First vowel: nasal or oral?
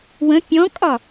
nasal